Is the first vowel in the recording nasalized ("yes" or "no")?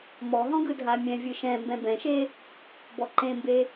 no